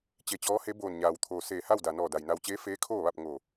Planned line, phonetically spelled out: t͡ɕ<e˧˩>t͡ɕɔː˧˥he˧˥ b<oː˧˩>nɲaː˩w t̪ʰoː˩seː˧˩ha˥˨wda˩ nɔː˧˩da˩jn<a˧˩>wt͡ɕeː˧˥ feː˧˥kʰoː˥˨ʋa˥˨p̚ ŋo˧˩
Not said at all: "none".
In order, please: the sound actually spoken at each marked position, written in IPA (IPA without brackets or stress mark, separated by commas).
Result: e˧˩, oː˧˩, a˧